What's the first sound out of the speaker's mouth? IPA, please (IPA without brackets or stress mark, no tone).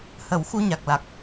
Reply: h